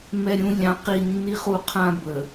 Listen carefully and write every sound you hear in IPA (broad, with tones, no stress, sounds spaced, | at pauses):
m ɛ˨ ɾʲ ũ˨ lʲ ɑ̃˨˦ q i˨ nː i˨ χ u˨ qʰ ã˦ b ə˨